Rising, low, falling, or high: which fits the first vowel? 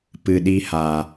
low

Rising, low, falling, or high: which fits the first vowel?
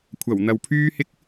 low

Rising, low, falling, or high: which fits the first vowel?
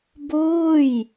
falling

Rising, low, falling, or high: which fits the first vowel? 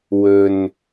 low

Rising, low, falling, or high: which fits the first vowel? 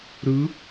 rising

